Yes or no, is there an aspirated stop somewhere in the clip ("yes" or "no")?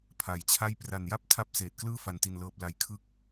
yes